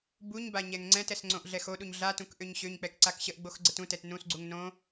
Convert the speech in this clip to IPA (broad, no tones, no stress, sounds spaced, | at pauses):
b u ɲ b a ɲ ɛ ŋ ŋ͡ǀ ɛ̃ t ɛ s ŋ͡ǀ õ ʔ ɮ ɛ x o ɗ u ɲ ɮ a t ũ k ʔ ø ɲ ɕ ø ɲ k͡p ɛ k ǀ a k ɕ ə ʔ ɡ͡b o x ɡ͡ǀ ə t ũ t ɛ t n ũ s ɡ͡ǀ u ŋ n õ